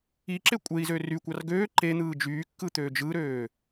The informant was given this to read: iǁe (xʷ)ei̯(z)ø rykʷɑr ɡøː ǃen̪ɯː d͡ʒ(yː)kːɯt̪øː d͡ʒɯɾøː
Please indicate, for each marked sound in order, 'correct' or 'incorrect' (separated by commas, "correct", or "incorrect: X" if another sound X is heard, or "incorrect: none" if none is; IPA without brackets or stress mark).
incorrect: kʷʼ, correct, correct